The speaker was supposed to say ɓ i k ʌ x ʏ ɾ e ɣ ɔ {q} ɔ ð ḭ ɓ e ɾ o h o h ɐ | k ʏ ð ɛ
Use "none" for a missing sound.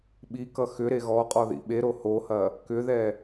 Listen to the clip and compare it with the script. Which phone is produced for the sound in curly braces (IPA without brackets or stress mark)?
qʼ